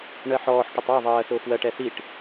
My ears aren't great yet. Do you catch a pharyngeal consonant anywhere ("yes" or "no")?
yes